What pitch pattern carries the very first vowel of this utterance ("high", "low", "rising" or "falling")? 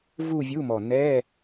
falling